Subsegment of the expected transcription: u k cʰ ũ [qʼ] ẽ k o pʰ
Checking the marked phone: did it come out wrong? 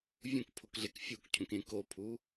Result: yes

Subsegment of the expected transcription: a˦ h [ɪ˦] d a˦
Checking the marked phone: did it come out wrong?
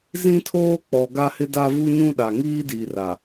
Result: no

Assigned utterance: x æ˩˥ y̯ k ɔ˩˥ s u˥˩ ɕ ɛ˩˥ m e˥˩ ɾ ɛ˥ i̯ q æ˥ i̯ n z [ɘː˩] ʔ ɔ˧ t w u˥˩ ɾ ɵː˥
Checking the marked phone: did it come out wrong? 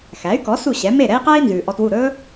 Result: yes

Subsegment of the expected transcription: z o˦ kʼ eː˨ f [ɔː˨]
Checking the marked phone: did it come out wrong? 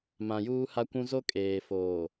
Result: yes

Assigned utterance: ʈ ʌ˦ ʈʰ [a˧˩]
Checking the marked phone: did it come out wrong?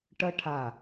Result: no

